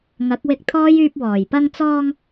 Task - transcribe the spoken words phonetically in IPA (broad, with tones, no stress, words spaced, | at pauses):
ŋɐ˨˥k̚wɪ˧k̚t̪ʰɔː˥j yː˧p̚wɔː˨˩j pɐ˧ŋt͡sɔː˧ŋ